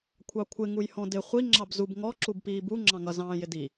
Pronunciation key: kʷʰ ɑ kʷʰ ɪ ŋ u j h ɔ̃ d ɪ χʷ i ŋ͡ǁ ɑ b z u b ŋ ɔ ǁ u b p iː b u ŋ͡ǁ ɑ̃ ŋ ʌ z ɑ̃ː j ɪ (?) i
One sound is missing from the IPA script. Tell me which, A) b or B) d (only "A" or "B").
B